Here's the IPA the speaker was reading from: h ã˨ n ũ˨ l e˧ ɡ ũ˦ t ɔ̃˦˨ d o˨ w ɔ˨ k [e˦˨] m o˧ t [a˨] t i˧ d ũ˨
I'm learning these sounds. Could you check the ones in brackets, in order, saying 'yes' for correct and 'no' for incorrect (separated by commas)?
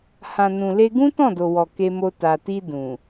no, yes